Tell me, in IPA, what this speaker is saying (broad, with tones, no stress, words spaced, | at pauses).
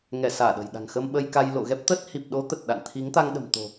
ŋɛ˧˩ saː˧˩ɗə̤˨˩jɗa̤˨˩ŋ xə˧mɓə˧jka˧j lo̰˧˨ ɣɛ˦˥p̚t̪ə˦˥t̚ hi˨˩p̚ɗo˨˦ t̪ə˨˩t̚ɗa̰˧˨n t̪ʰi˨˦ŋt̪a˧ŋɗə̤˨˩m t̪o̤˨˩